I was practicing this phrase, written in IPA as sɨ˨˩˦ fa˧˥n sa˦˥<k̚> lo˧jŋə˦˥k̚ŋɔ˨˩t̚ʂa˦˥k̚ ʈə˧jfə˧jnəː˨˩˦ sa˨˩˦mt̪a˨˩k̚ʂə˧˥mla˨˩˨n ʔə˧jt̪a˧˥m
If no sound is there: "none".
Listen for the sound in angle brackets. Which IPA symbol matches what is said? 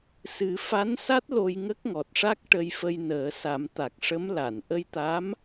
t̚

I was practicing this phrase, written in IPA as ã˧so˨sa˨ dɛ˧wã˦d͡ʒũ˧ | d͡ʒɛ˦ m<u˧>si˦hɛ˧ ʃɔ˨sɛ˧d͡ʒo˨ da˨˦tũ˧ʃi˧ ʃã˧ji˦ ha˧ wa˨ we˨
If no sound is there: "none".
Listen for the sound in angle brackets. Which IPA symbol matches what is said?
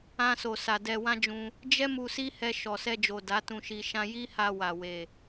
u˧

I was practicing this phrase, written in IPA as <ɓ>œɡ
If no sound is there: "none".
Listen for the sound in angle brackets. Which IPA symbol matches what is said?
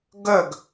ɡ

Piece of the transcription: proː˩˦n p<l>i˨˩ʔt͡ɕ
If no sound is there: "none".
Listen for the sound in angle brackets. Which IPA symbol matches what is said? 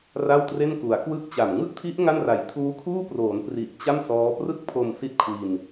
r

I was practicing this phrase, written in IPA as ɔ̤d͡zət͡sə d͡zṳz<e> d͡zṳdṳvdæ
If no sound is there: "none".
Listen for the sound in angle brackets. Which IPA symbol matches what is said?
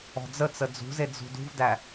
e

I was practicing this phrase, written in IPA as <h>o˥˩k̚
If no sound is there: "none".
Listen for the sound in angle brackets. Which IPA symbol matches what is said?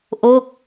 ʔ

